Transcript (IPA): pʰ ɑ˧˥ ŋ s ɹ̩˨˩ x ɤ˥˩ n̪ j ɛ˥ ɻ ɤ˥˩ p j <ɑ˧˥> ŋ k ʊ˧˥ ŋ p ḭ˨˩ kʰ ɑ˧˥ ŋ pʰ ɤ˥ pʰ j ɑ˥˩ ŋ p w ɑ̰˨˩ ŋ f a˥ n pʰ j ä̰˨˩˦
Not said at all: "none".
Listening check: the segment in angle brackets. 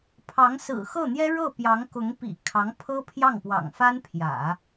ɑ˧˥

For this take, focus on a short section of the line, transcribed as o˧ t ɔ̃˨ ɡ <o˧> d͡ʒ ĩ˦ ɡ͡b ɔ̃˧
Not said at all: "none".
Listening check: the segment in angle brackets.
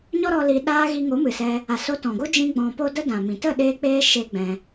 o˦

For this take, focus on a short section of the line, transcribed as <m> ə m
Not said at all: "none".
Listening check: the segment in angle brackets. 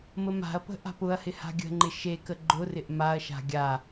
m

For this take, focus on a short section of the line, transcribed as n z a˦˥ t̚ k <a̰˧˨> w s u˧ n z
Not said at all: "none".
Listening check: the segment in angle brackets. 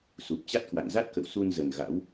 ə̰˧˨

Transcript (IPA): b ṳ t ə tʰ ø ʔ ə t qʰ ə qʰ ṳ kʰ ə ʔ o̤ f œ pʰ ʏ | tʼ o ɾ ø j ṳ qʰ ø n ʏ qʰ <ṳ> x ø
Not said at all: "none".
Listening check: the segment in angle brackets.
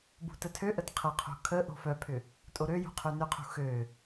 ṳ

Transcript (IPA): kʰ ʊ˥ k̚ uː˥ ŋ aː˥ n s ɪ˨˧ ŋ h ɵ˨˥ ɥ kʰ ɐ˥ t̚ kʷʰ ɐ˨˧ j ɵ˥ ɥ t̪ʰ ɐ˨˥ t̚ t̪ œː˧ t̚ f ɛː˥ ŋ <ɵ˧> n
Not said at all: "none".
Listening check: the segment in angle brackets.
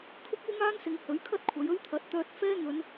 ɵ˨˧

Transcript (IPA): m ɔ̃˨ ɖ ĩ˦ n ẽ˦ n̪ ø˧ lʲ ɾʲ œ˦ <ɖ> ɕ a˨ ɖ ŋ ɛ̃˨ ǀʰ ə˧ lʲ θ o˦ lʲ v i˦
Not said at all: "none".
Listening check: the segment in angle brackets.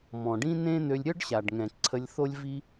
ɖ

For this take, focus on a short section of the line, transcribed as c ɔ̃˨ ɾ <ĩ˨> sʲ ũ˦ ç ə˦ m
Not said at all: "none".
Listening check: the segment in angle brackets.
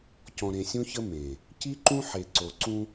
ẽ˨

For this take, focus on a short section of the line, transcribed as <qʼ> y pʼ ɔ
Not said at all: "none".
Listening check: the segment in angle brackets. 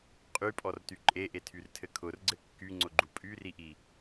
qʼ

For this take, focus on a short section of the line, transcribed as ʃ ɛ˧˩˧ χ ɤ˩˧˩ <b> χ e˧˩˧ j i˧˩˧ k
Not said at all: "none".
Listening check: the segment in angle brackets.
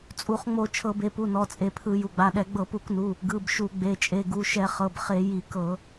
b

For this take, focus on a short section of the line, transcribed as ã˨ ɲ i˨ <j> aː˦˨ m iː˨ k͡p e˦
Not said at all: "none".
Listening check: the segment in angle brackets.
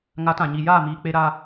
j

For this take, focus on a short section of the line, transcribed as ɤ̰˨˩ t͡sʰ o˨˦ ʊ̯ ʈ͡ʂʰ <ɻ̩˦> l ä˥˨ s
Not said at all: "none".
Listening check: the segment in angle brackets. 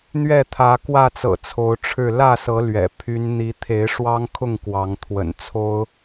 ɻ̩˥˨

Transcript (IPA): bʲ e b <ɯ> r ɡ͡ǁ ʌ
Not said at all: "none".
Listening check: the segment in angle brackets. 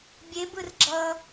ɯ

